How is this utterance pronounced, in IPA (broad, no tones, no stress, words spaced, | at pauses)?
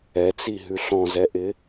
ɛt͡siɦʉ ɬɔ̃zɛʔɪ